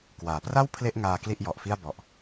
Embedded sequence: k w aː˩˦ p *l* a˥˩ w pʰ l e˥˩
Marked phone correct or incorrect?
incorrect